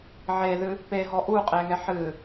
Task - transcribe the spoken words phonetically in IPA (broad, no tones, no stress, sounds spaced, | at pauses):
ʕ e ð ɨ | p e ɦ ɔ ʔ u qʼ e ŋ ɛ ħ ɨ